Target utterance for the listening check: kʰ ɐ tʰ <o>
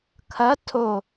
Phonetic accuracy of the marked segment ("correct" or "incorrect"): correct